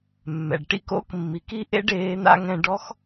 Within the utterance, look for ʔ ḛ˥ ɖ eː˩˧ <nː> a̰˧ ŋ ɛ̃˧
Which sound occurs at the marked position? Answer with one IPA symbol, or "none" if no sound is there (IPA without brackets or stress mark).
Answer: n̪